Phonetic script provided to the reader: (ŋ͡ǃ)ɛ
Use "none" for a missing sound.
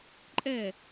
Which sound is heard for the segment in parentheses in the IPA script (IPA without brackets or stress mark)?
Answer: ǃʼ